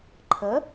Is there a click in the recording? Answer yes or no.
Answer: yes